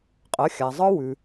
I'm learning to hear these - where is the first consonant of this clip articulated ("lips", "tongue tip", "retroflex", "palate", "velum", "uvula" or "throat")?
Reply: uvula